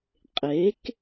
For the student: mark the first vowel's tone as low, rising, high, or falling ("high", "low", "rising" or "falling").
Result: rising